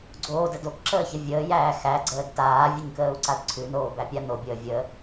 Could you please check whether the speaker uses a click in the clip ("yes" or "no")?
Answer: yes